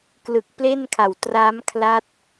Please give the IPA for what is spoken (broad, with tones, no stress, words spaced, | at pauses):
klɯ˨˩k̚ple˥˩nkʰa˨˩w tra˦˥mkʰla˦˥t̚